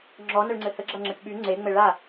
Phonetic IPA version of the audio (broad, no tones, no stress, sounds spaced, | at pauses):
ŋ͡ǁ ɔ n ə ɭ ŋ͡ǀ ɘ h ə ɡ͡ǁ ɐ ŋ͡ǁ ɘ ʈ ɓ y ŋ͡ǀ e ŋ͡m ɘ ɭ a